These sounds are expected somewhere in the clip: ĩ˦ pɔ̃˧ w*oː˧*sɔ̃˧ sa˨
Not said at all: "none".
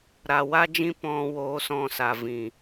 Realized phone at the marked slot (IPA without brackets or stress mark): oː˧